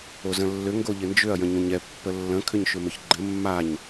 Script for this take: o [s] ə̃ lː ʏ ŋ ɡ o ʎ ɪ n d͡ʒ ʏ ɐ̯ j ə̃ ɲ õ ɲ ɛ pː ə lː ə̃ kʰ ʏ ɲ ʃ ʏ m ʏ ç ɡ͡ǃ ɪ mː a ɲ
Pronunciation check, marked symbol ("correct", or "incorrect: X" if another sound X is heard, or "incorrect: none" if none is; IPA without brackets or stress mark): incorrect: z